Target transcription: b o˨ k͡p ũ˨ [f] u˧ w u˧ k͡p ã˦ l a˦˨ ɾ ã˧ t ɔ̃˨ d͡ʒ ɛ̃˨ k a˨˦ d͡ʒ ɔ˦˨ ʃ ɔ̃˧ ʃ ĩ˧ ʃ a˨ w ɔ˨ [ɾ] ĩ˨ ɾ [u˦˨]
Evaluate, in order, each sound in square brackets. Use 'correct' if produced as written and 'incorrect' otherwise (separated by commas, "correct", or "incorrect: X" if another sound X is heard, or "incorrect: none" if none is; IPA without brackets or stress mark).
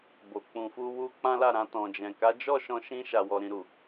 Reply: correct, correct, incorrect: u˨